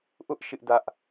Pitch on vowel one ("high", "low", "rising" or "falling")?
high